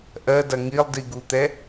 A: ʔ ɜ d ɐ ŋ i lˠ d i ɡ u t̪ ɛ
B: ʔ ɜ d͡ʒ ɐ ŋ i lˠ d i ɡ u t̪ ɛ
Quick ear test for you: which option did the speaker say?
A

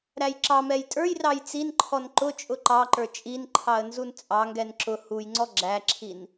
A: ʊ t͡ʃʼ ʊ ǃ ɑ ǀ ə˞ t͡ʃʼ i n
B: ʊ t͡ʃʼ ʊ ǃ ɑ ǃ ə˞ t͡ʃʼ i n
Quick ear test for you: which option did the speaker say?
B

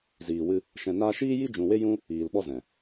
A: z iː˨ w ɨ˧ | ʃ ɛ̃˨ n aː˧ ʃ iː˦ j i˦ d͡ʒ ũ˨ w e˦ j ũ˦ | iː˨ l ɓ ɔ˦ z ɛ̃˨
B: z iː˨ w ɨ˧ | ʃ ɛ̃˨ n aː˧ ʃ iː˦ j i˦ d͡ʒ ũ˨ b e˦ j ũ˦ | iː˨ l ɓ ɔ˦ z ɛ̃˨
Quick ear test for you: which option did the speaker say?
A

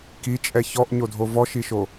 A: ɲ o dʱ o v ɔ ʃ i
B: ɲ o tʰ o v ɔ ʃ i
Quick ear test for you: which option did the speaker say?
A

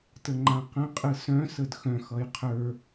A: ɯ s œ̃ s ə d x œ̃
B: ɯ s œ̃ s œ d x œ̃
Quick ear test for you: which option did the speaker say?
A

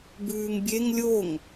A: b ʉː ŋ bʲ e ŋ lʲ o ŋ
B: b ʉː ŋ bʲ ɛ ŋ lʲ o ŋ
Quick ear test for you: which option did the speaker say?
A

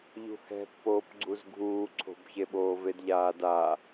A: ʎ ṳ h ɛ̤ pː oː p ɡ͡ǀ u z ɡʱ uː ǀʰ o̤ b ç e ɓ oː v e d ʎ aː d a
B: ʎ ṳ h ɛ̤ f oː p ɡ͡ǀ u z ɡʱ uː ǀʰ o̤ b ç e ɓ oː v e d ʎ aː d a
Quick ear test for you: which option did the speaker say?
A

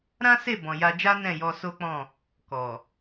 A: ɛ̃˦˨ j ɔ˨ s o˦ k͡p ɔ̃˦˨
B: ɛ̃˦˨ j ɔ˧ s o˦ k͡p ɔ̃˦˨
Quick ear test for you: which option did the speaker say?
B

